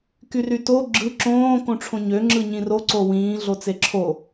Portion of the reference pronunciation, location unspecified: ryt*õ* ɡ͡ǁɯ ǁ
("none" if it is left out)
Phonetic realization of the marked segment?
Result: o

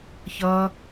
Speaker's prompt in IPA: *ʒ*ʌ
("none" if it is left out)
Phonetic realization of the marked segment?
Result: ç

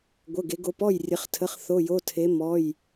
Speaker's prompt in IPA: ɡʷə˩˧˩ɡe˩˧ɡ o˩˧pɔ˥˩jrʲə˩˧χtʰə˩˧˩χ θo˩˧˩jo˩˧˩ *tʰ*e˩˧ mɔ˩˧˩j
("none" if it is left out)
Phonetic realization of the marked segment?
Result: tʰ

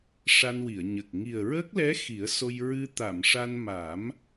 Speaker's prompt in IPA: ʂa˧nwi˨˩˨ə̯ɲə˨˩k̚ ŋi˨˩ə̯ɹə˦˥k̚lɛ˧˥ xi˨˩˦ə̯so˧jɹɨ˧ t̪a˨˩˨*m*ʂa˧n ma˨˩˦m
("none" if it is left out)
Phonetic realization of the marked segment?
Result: m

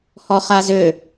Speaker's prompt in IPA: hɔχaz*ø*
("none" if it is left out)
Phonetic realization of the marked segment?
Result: ø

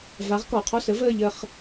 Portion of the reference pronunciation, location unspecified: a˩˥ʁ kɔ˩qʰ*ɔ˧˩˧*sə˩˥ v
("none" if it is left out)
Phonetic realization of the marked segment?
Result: ɔ˦˨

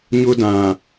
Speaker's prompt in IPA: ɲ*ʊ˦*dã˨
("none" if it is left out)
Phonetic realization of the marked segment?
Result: ʊ˦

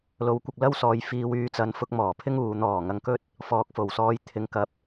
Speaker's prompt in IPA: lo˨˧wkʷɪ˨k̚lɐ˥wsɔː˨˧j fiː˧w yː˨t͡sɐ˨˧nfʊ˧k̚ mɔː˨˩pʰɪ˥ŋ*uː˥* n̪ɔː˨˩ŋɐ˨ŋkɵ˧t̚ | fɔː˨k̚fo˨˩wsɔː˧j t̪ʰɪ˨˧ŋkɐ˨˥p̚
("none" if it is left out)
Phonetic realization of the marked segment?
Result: uː˨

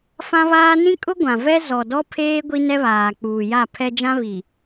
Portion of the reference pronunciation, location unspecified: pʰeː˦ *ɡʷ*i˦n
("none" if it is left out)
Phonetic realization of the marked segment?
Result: ɡʷ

